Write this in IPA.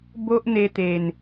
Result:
b o˦ ʔ n̪ e˧ t̪ e˨˩ n

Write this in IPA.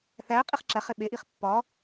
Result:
θ æ qʼ i χ ǁ æ χ e ɓ e ʔ i χ pː ɒ

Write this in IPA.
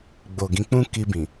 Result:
ɡ͡b o˨ ɡ ĩ˧ k͡p ũ˦ k i˧ b ĩ˨

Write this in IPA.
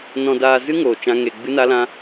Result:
n ɔ̃˧ d aː˧ z ɨ˦ ŋ oː˧ t͡ʃ ã˦ ŋ e˧ ɡ͡b ɨ˦ n a˦ l ã˦

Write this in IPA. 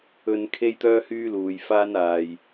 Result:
ɵ˨ n kʰ e˧ j t̪ œː˧ h yː˧ l uː˨ j f aː˧ n aː˨ j

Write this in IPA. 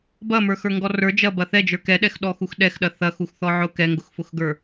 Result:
b ɐ m ə˞ x ə˞ ŋ ɡ ɔ r ə˞ d͡ʒ ɐ b ɐ θ ɛ d͡ʒ ə˞ k ɛ ɗ ɛ x ɗ ɔ x u x ɗ ɛ x ɗ ɐ θ ɐ x u x θ ɔ ʕ ʊ k ɛ ŋ ɡ ʊ x f ʊ x ɡ ə˞

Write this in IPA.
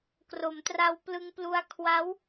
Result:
k r o˩˦ m t r a˧ w p l ɯ˧ ŋ p l u˧ a̯ kʰ w a˦˥ w

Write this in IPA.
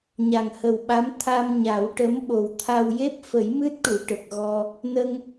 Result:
ɲ a˨˩ ŋ h ə˨˩ w ɓ a˧˥ m t̪ʰ a˧ m ɲ a˨˩˦ w ʈ ə˧˥ m ɓ o˨˩ w t̪ʰ a˧ w j e˦˥ p̚ f ə˨˩˦ j m ɨ˦˥ t̚ ʈ u˨˩˨ ʈ ə˨˩ k̚ ɣ ɔ˧ | n ə˧ ŋ

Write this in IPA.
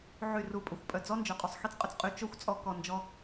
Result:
ʕ y˦˨ r u˧ pʼ ə˨ xʷ pʼ œ˨ d͡z ɔ˦ n d͡ʒ œ˨ qʼ o˨ sˤ x i˦ t͡s qʼ œ˨ t͡s qʼ y˧ t͡ʃ o˦ xʷ t͡sʼ ɔ˧ k ɔ˨ n d͡ʒ ɔ˧

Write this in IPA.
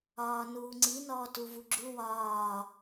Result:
ɒː n uː ŋ͡ǀ i n ɔː t u v u ɡ͡ǁ u w ɒː

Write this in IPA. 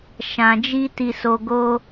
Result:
ʃ ã˨ d͡ʒ i˧ t i˨ s o˨ ɡ o˧

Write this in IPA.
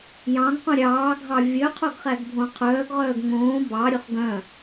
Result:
j ɑ̃ ŋ q ũ ɾʲ ɑː ɡʱ ɑ vʲ œ qʰ o ɡ χ æ ɡ bʱ õ qʰ œː ɡ ʁ œː ɡ ŋ õː b ɑ ɾʲ ɵ χ ɡ œ̃

